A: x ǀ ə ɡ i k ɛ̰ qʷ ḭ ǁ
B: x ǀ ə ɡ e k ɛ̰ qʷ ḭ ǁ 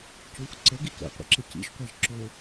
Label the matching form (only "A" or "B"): A